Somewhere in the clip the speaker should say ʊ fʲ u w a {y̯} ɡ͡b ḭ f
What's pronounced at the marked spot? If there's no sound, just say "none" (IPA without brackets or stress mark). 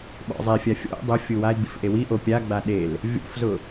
i̯